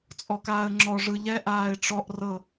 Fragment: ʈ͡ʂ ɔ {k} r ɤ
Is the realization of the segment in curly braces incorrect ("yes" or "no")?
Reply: yes